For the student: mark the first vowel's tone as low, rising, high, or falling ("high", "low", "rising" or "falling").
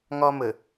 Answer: high